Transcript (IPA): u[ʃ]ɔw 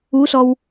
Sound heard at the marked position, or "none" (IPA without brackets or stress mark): s